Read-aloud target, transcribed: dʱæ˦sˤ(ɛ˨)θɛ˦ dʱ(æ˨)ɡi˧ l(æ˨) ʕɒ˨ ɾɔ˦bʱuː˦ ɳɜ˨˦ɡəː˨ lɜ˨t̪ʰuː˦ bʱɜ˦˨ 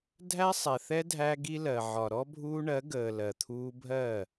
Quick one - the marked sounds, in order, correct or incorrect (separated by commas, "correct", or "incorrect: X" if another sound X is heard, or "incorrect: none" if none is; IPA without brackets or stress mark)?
correct, incorrect: æ˧, incorrect: ɜ˨